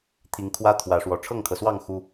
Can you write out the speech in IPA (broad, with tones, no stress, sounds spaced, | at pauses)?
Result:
t̪ʰ i˨˦ ŋ kʰ w ä˦ t̪ʰ w ä˨˦ ʂ w ɔ˨˦ ʈ͡ʂʰ ɤ˥˨ ŋ kʰ ɤ˩ s w ɑ˥˨ ŋ x u˦